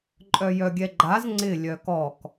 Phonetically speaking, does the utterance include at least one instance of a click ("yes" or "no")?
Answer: yes